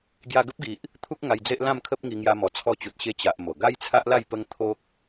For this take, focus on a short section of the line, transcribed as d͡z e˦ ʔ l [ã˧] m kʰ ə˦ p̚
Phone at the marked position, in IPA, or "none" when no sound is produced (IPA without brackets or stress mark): ã˥˧